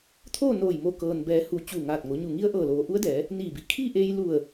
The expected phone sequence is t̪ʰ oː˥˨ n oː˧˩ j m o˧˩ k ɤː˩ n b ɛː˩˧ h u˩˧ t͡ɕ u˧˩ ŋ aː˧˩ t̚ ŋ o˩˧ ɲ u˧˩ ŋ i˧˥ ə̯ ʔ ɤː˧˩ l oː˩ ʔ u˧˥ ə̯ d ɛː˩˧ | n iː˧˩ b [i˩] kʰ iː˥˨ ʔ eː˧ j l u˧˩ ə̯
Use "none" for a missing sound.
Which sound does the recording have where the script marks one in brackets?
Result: i˩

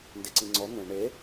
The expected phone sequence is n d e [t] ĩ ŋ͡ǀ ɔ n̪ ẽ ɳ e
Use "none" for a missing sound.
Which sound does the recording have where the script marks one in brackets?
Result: ǀ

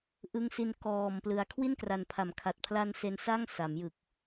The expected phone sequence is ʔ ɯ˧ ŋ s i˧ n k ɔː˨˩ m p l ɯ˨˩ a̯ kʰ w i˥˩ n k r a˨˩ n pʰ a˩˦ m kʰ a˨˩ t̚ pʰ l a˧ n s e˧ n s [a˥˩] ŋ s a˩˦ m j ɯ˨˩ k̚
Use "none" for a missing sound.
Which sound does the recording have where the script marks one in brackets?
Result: a˥˩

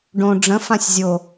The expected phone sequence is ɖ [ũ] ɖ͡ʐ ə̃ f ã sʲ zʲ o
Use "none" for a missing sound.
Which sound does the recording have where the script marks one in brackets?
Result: õ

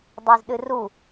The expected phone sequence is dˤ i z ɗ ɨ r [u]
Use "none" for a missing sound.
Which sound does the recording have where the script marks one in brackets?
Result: u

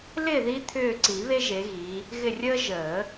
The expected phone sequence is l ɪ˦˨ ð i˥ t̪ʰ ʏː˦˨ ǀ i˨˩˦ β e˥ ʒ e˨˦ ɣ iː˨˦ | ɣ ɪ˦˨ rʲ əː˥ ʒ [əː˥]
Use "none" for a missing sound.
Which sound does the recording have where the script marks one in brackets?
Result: əː˨˩˦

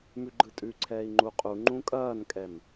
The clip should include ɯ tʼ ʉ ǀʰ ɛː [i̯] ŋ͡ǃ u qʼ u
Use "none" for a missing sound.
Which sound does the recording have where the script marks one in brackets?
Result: i̯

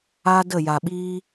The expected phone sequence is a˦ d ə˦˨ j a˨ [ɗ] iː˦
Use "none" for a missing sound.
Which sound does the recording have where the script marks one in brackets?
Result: ɓ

